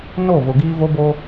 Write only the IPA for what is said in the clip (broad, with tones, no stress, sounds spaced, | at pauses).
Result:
n o˦˨ v ʊ˨ ɡ iː˦ v o˦ b o˦